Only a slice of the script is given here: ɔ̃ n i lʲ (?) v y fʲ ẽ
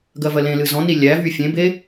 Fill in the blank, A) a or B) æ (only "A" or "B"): B